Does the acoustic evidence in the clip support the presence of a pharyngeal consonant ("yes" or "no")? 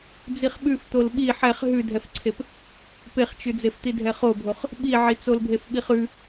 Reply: yes